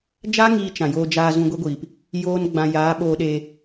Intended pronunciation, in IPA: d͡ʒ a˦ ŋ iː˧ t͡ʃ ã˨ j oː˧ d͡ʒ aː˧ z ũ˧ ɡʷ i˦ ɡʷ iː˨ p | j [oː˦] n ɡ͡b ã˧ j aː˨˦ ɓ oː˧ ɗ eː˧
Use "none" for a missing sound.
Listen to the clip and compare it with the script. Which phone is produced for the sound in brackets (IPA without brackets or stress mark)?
oː˦